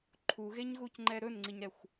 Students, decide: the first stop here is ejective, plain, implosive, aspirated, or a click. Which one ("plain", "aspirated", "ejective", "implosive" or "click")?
click